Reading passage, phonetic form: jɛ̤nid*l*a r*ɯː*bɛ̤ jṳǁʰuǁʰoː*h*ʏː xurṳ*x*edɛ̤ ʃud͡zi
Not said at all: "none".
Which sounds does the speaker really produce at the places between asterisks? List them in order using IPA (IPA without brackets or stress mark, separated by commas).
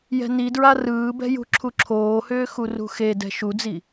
ɹ, ɯː, h, x